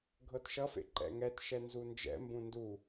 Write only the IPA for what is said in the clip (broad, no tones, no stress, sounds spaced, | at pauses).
ɡʱ ɤ t ʃ ʌ f ḛ ǃ ɛ̰ ŋ ɛ t ʃ ɛ n z u n d͡ʒ ɛ̰ m b ũ n d u